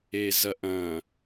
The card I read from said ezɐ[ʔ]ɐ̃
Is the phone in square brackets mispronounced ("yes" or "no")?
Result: no